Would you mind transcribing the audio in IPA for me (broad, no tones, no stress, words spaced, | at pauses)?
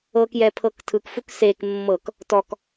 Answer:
ɤk jɛpʰɤktʰɯkfuk sek mːɤk | tɔk